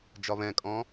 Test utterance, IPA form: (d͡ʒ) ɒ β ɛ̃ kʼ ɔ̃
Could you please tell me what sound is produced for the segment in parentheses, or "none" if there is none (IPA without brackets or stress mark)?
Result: d͡ʒ